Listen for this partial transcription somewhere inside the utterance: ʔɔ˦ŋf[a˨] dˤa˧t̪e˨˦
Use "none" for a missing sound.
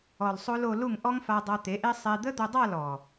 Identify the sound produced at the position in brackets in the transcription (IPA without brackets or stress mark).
a˧